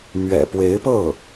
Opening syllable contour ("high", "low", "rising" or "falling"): low